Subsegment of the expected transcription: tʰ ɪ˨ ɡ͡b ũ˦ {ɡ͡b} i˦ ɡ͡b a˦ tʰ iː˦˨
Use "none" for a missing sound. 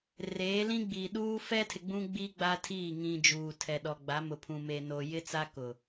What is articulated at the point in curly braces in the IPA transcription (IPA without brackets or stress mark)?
ɡ͡b